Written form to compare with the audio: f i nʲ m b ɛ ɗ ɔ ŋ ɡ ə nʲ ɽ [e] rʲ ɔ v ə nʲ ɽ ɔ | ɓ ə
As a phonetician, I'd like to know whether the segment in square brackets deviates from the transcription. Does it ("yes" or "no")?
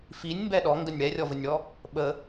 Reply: yes